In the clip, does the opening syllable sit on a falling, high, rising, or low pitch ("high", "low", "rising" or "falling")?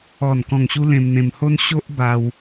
low